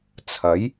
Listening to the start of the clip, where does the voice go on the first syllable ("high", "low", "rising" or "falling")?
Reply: rising